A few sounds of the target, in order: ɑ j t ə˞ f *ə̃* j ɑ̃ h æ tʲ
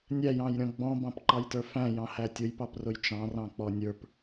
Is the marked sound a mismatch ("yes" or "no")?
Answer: yes